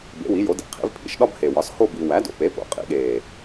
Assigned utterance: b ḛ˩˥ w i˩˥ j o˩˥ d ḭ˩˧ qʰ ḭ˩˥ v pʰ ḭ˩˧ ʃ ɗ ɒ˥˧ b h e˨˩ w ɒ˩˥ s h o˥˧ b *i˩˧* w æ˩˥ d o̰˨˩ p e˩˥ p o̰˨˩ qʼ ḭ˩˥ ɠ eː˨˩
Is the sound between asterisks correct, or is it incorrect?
correct